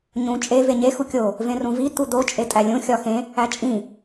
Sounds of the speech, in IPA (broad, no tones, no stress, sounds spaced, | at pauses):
ɲ ũ t͡ʃʼ e v e ɲ e x u kʲ o | v ẽ r ũ v i t̪ u d̪ o t͡ʃʼ e tʼ æ lʲ ũ xʲ ɒ x ẽ | æ t͡ʃʼ ĩ